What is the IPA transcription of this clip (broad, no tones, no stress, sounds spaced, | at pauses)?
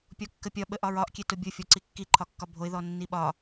pʲ ɔ kː ə pʲ ɒ ɓ ə ʔ ɒ ɹ ɒ ʔ kʲ e t o bʲ o fʲ ɔ ǀ i kː i ǃʰ ɒ kː ɒ bʱ o ɪ̯ ð ɔ nː i ɓ ɒ